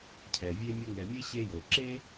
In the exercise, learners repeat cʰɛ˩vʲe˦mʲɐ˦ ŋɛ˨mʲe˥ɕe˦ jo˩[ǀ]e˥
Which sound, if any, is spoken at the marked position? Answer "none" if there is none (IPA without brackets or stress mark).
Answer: ǁ